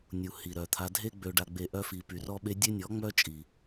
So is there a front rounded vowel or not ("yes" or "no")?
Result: yes